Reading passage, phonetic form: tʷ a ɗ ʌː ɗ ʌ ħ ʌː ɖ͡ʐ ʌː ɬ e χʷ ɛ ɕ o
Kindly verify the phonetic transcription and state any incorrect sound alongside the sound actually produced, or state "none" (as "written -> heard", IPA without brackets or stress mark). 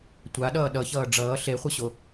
ħ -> ç